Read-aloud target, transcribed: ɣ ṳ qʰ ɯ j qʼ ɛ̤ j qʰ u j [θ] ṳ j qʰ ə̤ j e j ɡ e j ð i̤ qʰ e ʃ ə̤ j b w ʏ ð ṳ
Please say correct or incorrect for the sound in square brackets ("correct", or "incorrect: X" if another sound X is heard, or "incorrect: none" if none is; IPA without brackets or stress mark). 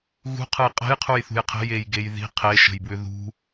correct